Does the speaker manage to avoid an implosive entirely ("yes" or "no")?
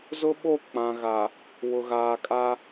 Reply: no